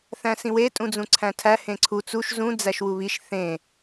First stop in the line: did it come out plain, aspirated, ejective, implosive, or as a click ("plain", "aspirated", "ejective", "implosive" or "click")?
ejective